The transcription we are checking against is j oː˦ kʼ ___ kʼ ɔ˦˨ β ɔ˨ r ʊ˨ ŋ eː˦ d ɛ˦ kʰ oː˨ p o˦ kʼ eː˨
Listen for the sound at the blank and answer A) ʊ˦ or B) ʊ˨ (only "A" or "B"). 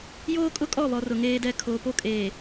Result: A